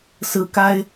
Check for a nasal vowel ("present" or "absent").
absent